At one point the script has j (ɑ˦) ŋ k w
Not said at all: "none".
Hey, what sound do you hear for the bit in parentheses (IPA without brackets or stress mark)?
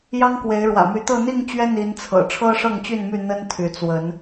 ɑ˦